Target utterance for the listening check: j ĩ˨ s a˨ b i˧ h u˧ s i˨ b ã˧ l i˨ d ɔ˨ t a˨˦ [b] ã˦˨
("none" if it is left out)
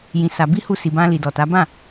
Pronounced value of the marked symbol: b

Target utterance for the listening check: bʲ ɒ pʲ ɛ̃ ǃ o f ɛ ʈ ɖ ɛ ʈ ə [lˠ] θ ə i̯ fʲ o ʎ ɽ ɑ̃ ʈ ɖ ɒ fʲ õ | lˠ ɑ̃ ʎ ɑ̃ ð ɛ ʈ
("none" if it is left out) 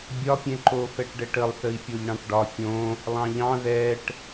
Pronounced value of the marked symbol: lˠ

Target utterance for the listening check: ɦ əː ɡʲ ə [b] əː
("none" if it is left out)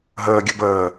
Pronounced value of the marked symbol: b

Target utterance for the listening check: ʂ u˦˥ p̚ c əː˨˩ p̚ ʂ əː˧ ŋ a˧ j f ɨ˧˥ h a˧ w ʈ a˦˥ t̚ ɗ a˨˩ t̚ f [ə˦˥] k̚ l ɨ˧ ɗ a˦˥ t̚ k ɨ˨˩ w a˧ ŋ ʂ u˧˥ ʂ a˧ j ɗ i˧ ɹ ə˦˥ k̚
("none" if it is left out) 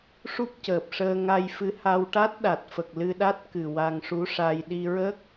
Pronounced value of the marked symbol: ə˨˩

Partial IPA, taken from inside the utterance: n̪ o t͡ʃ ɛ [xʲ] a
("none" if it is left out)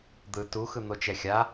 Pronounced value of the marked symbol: xʲ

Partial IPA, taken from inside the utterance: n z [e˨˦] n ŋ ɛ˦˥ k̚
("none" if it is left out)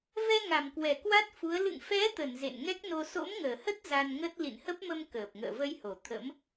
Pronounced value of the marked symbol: ḛ˧˨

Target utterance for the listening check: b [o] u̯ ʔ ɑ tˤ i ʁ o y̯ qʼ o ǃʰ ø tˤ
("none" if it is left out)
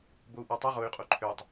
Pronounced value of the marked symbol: o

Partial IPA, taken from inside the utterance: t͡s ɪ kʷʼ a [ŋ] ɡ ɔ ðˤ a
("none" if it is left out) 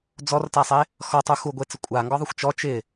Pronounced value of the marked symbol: ŋ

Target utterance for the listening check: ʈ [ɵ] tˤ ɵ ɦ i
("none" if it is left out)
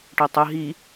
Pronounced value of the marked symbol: ɵ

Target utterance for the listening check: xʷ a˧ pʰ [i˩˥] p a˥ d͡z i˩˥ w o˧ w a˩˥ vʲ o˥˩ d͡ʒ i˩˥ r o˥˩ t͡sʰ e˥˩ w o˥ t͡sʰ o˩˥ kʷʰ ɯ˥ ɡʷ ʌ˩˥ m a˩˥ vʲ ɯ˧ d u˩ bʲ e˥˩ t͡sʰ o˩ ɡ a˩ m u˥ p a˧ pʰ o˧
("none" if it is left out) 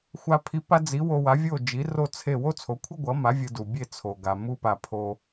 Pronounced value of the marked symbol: i˩˥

